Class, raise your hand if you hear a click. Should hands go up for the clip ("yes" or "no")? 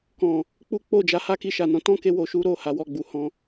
no